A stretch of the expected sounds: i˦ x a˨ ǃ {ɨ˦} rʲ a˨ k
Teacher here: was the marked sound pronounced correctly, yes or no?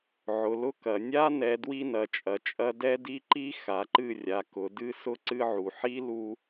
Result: no